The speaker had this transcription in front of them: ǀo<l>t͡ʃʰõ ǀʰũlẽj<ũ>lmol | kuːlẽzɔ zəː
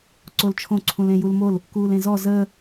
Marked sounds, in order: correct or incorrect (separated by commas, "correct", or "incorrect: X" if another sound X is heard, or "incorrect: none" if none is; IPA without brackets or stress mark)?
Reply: correct, incorrect: u